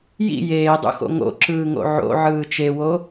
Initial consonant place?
palatal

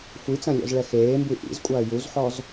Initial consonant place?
velar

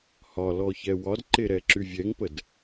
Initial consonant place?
glottal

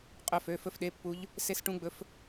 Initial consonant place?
uvular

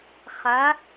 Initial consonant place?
uvular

